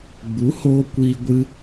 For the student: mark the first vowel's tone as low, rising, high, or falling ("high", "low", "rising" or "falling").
rising